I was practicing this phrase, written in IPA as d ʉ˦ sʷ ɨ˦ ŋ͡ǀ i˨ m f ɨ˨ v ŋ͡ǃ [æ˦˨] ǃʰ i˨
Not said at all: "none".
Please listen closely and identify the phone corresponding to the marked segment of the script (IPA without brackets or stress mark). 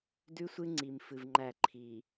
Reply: æ˦˨